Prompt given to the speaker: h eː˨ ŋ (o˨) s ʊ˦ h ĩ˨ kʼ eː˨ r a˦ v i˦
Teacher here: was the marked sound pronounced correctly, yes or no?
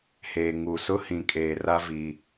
no